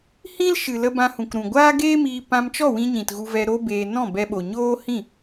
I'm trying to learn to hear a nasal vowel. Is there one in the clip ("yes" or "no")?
yes